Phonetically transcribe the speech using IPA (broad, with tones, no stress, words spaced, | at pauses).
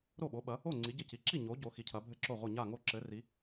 ɾo˥˨ɓo˨˥ɓɐ˨˥ | o˥˨ ŋ͡ǀi˨˥ɟɘ˥˨ci˨˥ ǁi˥˨ ɲo˨˥ ɟo˨˥xi˨˥cʰɐ˨˥bʱɘ˥˨ ǁo˥˨ʁʷɘ˥˨ ɲa˥˨ŋo˥˨ ǁɘ˨˥ri˨˥